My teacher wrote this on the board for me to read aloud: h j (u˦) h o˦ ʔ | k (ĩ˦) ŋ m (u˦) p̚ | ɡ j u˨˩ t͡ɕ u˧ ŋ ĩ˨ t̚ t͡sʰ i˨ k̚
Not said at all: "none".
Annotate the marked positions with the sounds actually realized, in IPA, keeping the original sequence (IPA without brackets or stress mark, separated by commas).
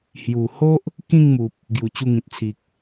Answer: u˨˩, ĩ˥˧, u˨